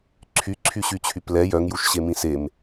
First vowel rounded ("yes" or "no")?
yes